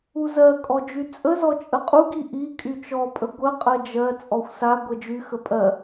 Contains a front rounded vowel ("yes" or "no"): yes